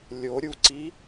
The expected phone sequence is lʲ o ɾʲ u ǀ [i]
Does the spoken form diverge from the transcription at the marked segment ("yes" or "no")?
no